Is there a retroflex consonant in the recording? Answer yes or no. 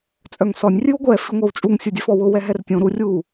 no